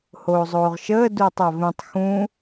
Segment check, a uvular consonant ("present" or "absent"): present